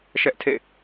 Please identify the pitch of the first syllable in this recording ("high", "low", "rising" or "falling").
high